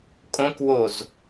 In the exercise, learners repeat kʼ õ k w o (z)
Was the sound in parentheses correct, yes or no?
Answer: yes